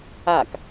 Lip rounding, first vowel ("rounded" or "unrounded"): unrounded